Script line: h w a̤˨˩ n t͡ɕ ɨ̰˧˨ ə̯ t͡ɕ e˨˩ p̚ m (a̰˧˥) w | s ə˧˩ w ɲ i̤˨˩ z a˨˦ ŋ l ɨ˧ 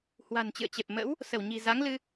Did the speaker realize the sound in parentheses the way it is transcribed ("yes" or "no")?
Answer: no